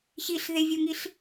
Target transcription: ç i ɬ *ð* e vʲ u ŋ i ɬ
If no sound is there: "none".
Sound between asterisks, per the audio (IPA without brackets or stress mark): ð